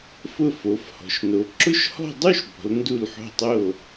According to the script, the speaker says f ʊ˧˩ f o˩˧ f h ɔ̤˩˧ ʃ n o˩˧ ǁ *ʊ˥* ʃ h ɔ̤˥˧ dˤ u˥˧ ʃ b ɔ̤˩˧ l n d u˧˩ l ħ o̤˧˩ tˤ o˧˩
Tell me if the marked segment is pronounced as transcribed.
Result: yes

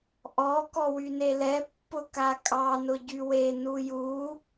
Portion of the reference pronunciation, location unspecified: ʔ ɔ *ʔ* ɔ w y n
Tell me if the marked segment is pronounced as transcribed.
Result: no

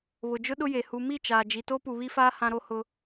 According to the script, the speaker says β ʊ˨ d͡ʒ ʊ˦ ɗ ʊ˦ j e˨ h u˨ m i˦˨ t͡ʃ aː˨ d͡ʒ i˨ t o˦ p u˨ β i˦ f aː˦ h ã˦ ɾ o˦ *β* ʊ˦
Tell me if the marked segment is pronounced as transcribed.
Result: no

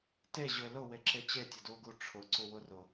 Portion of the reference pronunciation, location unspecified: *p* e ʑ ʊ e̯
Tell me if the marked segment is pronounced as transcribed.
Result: no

